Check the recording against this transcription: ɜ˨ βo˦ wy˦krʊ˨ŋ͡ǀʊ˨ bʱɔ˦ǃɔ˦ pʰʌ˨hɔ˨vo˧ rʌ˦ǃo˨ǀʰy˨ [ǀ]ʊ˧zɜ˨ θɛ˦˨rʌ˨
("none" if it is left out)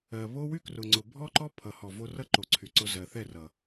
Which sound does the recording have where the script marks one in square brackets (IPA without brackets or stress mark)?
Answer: ǀ